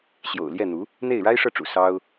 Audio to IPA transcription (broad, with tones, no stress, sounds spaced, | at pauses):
ɕ j o̰˨˩ ʊ̯ l j ɛ˥˩ n̪ u˧˥ | n̪ e˥˩ ɪ̯ ɻ a˥ ɪ̯ ʂ ɤ˥˩ ʈ͡ʂ ṵ˨˩ s ɑ˥ ʊ̯